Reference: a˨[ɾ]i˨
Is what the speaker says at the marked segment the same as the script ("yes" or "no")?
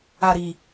yes